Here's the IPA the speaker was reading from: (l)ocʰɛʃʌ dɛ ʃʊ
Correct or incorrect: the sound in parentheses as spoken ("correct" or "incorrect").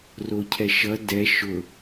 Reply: incorrect